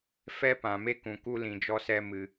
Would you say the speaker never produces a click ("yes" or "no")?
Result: yes